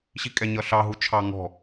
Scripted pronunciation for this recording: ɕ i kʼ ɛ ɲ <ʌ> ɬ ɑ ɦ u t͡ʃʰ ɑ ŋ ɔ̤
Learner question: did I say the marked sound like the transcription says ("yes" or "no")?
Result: yes